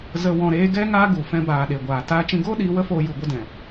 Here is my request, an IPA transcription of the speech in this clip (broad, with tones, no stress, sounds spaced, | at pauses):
z ə˧ w ɔ̃˧ ɾ eː˦ ɡ ɛ˦ ŋ aː˦ ɡ u˨ f ɛ̃˧ b aː˨ ɗ e˨ ɡʷ aː˨ t aː˧ t͡ʃ ĩ˧ ɡ oː˦ ɗ iː˨˦ w ə˦ f oː˧ j u˨ ɡʷ ə˦˨ d ɛ̃˨